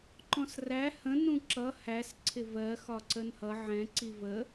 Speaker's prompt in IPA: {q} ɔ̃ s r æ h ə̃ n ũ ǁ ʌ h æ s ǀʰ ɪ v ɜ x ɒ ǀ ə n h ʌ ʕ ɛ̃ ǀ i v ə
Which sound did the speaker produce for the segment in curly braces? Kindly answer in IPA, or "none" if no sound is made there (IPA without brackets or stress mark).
ǃ